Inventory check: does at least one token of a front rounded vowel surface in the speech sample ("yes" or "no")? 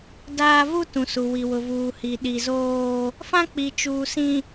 no